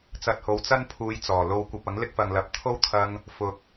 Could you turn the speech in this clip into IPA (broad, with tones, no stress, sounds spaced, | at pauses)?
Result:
t͡s ɐ˧ t̚ h o˨˧ w t͡s ɐ˥ n pʰ uː˨˧ j t͡s ɔː˨˩ l o˧ w kʷ ɐ˧ p̚ ɐ˨˥ ŋ l ɪ˥ k̚ f ɐ˨ ŋ l ɐ˨ p̚ t̪ʰ o˥ w t̪ʰ ɐ˧ ŋ | f ʊ˨ k̚